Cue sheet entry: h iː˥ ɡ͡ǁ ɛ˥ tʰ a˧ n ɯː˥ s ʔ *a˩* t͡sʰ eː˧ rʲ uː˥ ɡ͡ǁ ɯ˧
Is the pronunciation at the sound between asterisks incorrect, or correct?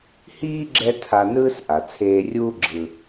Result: correct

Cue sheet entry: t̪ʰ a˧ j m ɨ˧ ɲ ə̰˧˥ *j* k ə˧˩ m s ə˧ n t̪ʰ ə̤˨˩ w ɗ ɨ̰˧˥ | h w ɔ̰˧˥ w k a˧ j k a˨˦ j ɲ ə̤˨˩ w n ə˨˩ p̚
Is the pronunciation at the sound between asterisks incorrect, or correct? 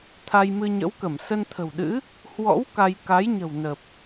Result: incorrect: w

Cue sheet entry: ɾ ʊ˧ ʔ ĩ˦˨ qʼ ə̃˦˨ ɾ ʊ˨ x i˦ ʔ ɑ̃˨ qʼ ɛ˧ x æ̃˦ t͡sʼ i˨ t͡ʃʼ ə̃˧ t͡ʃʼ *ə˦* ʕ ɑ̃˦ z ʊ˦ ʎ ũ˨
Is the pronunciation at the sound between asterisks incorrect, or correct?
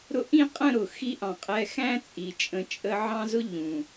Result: correct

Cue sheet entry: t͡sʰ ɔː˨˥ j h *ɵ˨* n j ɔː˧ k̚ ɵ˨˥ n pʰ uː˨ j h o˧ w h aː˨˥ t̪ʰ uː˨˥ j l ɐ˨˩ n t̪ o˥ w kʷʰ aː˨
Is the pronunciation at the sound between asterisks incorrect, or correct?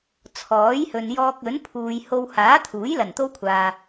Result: correct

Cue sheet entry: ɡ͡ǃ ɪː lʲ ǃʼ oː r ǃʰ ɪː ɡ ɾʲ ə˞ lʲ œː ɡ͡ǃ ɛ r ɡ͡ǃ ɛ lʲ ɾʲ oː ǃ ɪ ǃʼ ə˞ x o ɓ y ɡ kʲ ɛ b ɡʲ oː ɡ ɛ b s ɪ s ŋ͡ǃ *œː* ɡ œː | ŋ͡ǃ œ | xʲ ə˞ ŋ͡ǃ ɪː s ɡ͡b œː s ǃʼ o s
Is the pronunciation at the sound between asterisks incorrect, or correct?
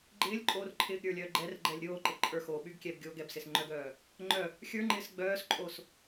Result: incorrect: œ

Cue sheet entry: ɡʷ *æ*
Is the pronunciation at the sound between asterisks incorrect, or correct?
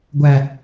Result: correct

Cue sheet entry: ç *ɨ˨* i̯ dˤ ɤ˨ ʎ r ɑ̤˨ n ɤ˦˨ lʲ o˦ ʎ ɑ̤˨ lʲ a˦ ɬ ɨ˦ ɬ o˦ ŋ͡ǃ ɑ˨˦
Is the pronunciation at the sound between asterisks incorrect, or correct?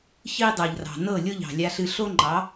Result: incorrect: ɨ˦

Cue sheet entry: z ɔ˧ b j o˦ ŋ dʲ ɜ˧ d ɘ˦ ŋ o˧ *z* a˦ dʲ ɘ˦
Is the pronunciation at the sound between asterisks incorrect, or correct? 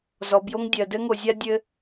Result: incorrect: zʲ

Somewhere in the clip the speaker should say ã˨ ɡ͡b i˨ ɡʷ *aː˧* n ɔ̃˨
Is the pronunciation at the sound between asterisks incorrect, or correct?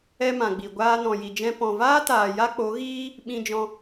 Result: correct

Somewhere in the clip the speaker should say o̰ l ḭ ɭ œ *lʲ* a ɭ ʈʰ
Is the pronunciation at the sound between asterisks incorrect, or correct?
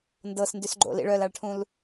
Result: incorrect: l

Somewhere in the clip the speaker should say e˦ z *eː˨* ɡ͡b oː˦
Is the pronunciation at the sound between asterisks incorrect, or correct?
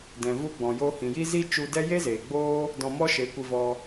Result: correct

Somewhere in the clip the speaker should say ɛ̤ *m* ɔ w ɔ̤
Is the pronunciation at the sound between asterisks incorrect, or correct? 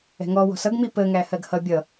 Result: incorrect: ŋ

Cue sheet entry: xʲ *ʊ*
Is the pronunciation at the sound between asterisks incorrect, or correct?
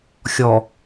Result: incorrect: ɔ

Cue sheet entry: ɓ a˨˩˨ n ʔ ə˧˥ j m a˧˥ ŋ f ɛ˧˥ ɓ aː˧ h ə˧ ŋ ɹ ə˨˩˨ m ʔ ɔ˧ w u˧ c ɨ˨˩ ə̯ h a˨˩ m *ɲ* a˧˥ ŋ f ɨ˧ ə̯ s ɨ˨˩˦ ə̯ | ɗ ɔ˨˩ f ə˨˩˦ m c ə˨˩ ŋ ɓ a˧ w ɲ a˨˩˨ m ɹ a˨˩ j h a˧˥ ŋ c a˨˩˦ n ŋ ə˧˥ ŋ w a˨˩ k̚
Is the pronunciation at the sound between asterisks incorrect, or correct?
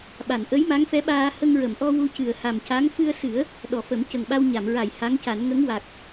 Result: incorrect: c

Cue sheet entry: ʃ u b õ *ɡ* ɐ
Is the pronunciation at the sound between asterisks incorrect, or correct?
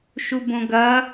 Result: correct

